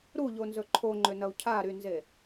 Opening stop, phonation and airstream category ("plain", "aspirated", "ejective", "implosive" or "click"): click